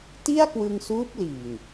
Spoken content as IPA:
t i˥˩ a̯ k w ɯ˧ ŋ s uː˦˥ p̚ l iː˨˩ ŋ

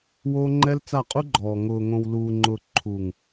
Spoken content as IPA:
w oː˦ ŋ͡ǃ ɛ˦ l t͡s a˦˨ qʼ u˦ ɡ͡ǃ ɔː˨ ŋ ʊː˨ ŋ õ˨ w l uː˨ ŋ͡ǃ ʊː˨ ǃʰ u˨ ŋ

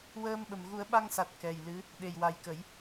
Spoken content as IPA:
w əː˧ m ɓ ə˨˩ m ɣ u˨˩˦ ə̯ ɓ a˧ ŋ s a˨˩ t̚ k ɛ˨˩ j l ɨ˧˥ | ɗ e˨˩ j w a˨˩ j k ə˨˩˦ j

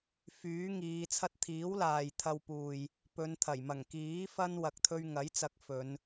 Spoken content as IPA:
f yː˨˥ ŋ iː˨˧ t͡sʰ ɐ˥ t̚ t̪ʰ iː˨˥ w l aː˨ j t̪ʰ ɐ˧ w p uː˨ j | p ɵ˨˧ n t̪ʰ ɐ˨˩ j m ɐ˨˩ ŋ k iː˨˥ f ɐ˥ n w ɐ˧ k̚ t̪ʰ ɵ˥ ɥ ŋ ɐ˨˥ j t͡s ɐ˨˥ k̚ f ɵ˨˧ n

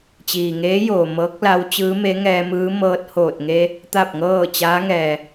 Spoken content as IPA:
t͡ɕ iː˩ ŋ eː˧˥ j oː˩ m ɤː˧˥ k̚ l a˧˥ w t͡ɕ ɯː˧˥ m e˧˥ ŋ ɛː˧ m ɯː˧˥ m ɤː˧ t̚ h oː˧˩ t̚ ŋ e˧ | t̪ a˥˨ p̚ ŋ ɤː˥˨ t͡ɕ aː˧˥ ŋ ɛː˩

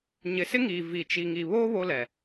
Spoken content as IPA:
ɲ ɪ˨˦ s ɪ˦ ŋ iː˨ v i˨ t͡ʃ i˨ ŋ i˨ β oː˦ β o˦ l ɛ˨

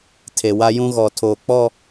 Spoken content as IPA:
tʰ e˨ w a˦ j ũ˦ ɣ ɔ˨ tʰ oː˨ k͡p ɔ˦˨

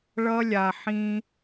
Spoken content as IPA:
ɭ ʌ˦ lʲ a˨ ħ ĩ˦

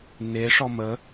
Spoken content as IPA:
n e ʂ ɔ m ə

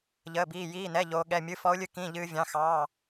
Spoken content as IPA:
ʎ əː˧˥˧ b iː˧˥˧ j iː˧˥˧ n ɛ˧˥˧ ʎ oː˦˥ ɠ ɛ˧˥˧ mʲ ɨ˧˥˧ f ɔ˦˥ ʊ̯ lʲ ɨ˦˥ k ĩ˧˥˧ ʎ ɨː˦˥ vʲ ɑ̃˧˥˧ x ɑ˧˥˧

